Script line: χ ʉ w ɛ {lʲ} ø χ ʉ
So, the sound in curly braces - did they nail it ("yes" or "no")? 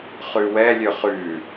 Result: yes